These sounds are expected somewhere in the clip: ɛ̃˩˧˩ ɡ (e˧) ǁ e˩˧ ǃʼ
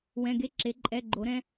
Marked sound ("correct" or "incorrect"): correct